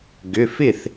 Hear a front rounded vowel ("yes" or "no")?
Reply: yes